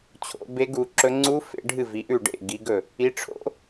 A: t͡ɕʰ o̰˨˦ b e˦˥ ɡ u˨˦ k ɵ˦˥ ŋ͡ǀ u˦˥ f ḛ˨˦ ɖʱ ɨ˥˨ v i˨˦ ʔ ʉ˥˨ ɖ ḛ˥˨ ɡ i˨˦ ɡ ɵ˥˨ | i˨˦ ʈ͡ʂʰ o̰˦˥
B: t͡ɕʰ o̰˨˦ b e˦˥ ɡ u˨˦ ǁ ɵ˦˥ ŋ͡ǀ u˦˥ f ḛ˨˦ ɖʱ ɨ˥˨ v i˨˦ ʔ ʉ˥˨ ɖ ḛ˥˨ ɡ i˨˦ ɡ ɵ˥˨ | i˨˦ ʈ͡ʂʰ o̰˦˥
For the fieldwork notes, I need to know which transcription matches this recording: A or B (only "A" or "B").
B